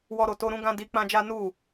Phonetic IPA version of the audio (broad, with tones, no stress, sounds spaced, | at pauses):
w ɔ˧ ɾ o˨ t o˧ ɾ ũ˦ ɡ ã˦ d i˧ k͡p ã˦ d͡ʒ a˦ n u˦˨